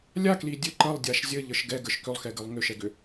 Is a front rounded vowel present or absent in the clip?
present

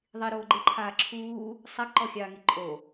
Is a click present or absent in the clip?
present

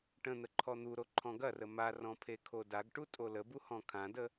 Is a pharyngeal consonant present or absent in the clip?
absent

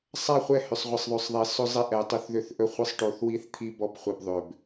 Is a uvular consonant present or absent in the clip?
present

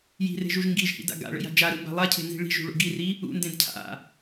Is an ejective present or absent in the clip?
absent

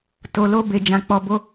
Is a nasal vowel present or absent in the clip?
present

